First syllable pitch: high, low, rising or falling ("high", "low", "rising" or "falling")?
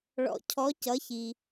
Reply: low